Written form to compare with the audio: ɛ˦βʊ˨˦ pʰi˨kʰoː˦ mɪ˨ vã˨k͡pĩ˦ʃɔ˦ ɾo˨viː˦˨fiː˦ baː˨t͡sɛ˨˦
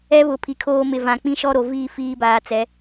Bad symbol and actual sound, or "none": none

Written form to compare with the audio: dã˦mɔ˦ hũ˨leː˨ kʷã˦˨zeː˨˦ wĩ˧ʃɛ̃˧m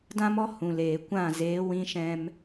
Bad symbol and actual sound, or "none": none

